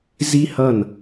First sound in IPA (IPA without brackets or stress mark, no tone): z